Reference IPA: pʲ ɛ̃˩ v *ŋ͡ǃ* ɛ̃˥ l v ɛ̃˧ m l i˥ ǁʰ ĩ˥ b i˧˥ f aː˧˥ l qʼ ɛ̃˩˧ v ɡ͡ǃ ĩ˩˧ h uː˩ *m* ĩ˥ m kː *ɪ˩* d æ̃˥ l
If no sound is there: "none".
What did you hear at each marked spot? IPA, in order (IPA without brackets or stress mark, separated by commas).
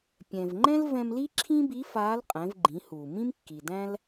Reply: ŋ͡ǃ, m, i˩